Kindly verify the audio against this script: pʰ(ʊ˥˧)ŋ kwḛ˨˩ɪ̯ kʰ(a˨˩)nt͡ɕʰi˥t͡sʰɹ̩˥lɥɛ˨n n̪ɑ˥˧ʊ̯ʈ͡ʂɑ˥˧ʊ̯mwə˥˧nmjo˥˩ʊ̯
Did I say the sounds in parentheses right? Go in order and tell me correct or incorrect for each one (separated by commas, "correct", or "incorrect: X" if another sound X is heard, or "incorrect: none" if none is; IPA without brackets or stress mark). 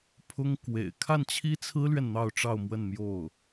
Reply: incorrect: ʊ˥, incorrect: a˥˩